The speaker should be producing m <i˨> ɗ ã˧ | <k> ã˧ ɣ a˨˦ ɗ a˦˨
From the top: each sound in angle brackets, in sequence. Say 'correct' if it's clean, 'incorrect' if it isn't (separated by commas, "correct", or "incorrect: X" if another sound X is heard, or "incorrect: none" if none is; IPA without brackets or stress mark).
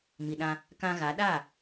correct, correct